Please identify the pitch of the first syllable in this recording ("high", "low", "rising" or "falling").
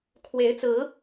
rising